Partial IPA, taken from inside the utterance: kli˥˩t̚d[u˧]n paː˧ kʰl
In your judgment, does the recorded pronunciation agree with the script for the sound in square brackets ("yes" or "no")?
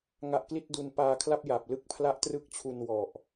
yes